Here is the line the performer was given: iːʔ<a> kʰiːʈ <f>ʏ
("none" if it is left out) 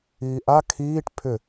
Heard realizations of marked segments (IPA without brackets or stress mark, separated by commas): a, pʰ